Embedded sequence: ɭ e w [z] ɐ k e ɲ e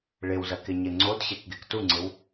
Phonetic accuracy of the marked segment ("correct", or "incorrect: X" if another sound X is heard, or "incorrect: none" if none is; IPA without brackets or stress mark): correct